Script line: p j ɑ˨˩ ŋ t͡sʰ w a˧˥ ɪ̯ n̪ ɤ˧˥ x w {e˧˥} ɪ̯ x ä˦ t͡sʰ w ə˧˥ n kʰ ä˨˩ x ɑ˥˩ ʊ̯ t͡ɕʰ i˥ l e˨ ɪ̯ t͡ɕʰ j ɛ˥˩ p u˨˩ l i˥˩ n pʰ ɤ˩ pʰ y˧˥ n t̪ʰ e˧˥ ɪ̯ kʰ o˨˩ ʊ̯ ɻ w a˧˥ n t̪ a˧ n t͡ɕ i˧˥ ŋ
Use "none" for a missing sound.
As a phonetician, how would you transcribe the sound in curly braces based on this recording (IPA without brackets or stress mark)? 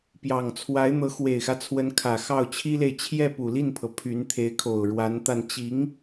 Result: e˨˩